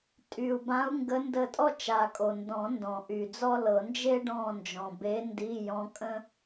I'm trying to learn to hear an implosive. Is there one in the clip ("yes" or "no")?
no